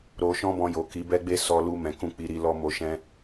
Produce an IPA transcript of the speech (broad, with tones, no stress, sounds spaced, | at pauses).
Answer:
ɾ o˧ ʃ ɔ̃˦ b ɔ̃˧ j o˨ k i˨˦ b ɛ˦ ɡ͡b e˦ s ɔ˧ l u˧ m ɛ̃˨ k ũ˧ k͡p i˧ ɾ i˧ l ɔ˧ m o˨ ʃ ɛ̃˧